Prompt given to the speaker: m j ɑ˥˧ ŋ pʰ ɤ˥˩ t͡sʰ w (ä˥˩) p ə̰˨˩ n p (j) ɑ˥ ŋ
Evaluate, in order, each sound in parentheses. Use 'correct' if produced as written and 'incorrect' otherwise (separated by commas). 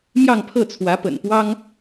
incorrect, incorrect